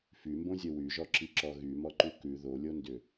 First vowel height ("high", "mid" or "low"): high